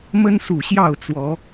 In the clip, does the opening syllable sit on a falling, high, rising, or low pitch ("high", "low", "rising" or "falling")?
high